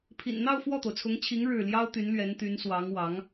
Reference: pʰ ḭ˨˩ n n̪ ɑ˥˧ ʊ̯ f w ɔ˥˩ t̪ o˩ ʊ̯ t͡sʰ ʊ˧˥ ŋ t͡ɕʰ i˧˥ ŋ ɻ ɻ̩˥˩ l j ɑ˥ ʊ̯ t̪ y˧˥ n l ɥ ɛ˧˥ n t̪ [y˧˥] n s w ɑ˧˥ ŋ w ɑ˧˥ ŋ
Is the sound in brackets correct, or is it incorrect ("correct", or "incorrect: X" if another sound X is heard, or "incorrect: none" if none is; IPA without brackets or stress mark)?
correct